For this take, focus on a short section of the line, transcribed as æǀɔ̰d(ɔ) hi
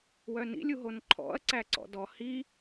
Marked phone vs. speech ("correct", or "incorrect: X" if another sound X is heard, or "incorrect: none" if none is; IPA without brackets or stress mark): correct